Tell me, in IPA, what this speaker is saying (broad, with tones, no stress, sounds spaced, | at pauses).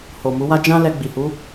h o˨ m u˨˦ w a˦ d͡ʒ ã˦ l ɛ˧ ɡ͡b i˨ h u˨˦